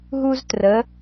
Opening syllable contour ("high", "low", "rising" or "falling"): high